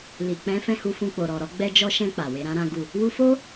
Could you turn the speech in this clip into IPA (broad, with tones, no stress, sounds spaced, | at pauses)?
l i˨ k͡p ɛ̃˨˦ f ɛ̃˦˨ h u˧ f ũ˧ k͡p o˨ ɾ ɔ˨ ɾ ɔ˨˦ ɡ͡b ɛ˧ d͡ʒ ɔ˧ ʃ ɛ̃˧ k͡p a˨ w e˨˦ ɾ ã˦ ɾ ã˦ ɡ u˦˨ | w u˧ f o˦